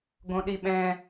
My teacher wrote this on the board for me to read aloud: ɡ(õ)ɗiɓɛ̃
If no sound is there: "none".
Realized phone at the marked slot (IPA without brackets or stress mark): õ